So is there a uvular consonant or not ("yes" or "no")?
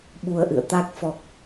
no